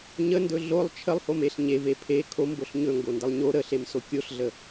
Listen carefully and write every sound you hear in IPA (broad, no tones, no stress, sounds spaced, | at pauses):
ɲ ə n d ɵ ɮ o lˠ t͡ʃʰ ə lˠ h o m e ɬ ɲ e v e pʰ e kʰ o m b o ɬ ɲ ɵ ŋ ɡ o n d ə lˠ ɲ o ɾ ə ɬ e m s o kʲ o ɬ ɮ ə